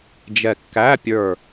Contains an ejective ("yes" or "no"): no